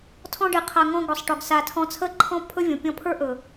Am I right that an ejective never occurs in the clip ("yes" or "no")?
yes